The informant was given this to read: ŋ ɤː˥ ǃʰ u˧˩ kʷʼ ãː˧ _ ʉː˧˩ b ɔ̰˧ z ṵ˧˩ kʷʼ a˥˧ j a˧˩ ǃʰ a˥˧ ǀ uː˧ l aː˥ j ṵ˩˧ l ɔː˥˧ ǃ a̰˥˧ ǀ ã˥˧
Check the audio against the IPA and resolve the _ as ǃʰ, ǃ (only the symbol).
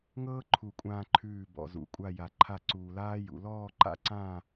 ǃʰ